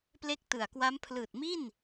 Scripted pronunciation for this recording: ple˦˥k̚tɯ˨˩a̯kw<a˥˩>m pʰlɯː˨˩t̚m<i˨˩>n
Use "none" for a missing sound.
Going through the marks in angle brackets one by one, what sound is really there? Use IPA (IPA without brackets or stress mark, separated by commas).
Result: a˦˥, i˥˩